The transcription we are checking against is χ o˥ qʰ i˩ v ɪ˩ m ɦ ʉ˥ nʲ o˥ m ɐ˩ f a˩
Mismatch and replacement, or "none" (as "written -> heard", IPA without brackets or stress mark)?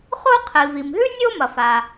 ɪ˩ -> i˩